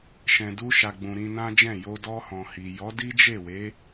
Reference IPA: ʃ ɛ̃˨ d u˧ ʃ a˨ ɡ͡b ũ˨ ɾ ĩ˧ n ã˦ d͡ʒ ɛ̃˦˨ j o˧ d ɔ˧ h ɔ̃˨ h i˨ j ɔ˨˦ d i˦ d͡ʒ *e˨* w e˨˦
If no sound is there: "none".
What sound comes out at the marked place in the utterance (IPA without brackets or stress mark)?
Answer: e˦˨